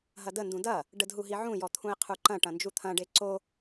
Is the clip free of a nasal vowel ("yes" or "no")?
no